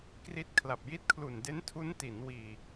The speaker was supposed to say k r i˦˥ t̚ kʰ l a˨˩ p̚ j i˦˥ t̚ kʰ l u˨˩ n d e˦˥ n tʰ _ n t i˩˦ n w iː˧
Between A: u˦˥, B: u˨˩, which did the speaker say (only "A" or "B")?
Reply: A